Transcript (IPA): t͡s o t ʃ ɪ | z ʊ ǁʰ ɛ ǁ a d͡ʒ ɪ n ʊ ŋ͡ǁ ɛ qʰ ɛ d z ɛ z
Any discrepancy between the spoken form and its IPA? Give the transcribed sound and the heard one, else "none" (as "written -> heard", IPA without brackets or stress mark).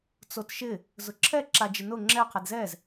none